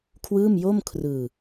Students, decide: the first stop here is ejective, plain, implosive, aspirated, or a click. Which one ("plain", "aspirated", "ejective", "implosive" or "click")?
aspirated